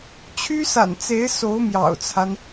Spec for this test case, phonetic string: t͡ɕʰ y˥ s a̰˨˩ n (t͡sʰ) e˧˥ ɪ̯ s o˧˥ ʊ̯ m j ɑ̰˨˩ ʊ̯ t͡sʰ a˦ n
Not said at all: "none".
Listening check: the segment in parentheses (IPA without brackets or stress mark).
t͡s